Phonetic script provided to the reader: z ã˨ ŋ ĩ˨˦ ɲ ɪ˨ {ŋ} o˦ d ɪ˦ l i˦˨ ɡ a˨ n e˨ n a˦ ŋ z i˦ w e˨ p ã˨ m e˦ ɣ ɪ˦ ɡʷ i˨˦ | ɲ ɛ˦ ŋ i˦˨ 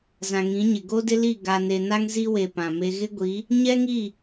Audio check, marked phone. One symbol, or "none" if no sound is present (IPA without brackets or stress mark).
ɡ